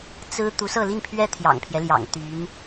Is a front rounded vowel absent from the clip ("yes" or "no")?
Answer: no